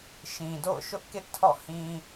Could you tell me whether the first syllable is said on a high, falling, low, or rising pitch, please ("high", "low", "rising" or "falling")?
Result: low